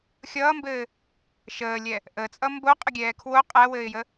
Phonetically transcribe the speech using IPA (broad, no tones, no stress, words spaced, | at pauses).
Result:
xʲʌːmbɘː | ʃəːlʲɛ | ʔət͡sʼʌ mboqʼəɡʲɛː kʰwo qʼæwɘːɪ̯jə